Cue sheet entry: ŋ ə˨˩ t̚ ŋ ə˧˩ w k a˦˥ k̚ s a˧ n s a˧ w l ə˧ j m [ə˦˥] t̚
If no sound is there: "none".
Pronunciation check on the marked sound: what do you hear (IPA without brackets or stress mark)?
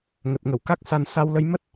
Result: ə˦˥